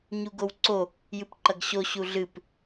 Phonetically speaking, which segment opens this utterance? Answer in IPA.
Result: ɲ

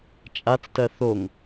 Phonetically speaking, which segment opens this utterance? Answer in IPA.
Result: t͡ʃʼ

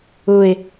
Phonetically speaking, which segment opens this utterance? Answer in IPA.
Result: ʊ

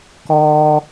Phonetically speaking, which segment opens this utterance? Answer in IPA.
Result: k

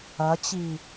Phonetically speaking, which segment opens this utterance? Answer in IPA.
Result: ɐ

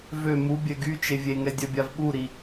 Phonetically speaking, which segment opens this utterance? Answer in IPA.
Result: v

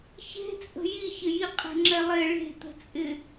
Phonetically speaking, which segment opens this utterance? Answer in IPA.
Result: ç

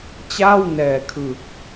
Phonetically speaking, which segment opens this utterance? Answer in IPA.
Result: t͡ɕ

